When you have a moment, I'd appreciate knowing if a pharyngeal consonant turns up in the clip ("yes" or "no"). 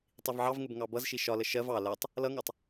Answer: yes